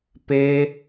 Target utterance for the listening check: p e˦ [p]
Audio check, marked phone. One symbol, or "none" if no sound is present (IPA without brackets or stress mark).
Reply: none